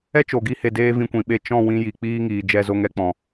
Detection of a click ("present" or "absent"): absent